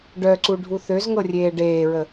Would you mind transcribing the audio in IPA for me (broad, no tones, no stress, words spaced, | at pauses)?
ɖœǀuɖʱu θøzŋɤrʲeː ɖeːɹə